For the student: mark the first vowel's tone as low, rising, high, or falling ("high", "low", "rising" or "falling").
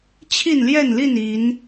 falling